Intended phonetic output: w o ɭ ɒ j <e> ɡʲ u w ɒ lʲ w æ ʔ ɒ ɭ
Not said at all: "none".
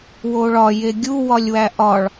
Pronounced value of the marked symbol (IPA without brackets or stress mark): e